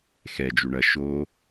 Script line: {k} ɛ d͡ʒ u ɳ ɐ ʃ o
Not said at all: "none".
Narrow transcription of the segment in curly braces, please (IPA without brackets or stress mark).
x